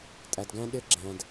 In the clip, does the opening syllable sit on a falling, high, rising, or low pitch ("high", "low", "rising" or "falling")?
low